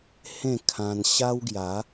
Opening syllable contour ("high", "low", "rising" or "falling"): falling